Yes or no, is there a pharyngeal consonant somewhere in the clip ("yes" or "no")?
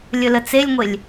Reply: no